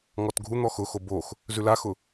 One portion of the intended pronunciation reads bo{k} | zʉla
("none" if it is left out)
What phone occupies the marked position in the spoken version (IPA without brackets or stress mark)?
x